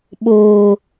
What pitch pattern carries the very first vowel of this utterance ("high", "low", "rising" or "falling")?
low